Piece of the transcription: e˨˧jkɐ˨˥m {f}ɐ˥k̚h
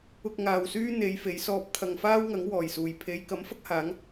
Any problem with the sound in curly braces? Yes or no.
no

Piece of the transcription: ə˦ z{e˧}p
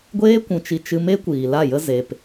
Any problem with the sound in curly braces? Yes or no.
no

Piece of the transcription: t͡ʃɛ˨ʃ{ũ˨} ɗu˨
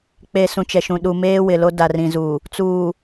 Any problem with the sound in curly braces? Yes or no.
no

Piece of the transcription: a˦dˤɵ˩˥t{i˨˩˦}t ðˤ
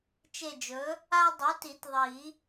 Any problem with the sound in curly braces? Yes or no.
no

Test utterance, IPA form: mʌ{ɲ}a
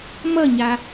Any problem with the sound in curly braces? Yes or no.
no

